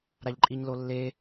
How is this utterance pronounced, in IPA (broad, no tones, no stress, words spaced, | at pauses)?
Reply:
ɾaʎǃʼiɲlolːe